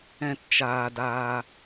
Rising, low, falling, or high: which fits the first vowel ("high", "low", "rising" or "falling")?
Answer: low